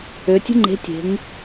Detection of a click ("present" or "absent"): present